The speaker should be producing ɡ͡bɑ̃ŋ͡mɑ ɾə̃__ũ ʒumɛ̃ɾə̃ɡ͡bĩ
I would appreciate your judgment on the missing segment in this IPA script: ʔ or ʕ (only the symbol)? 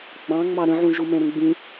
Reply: ʕ